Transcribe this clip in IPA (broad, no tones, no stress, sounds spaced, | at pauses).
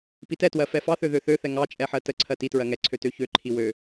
p i t ɛ t w ɜ f ɛ f ɑ θ ø ð ø θ ø θ ɛ ŋ ɑ t͡ʃʼ ɛ ħ ɜ t ə ǀʰ ɜ t i t ɹ ɜ ŋ ɛ ǀʰ ø t ø ç ø ǃʰ i w ø